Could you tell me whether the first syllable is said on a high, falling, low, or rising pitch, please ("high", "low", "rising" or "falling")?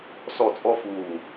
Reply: falling